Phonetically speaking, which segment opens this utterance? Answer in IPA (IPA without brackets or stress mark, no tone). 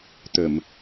t̪